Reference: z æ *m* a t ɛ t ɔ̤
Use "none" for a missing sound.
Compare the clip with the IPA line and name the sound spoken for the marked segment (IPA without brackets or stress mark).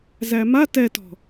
m